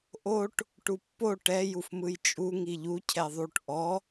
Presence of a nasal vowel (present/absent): absent